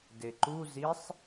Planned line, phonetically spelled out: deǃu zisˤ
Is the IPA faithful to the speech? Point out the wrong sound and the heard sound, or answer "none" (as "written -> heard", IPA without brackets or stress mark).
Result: none